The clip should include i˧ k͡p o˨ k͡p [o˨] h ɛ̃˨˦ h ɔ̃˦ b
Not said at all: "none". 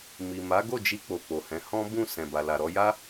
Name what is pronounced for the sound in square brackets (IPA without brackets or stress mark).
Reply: o˨